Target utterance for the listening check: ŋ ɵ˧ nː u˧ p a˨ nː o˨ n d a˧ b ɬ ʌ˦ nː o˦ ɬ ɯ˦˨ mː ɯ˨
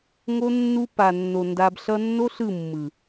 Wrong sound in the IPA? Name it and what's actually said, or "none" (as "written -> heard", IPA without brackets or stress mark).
ɵ˧ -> o˧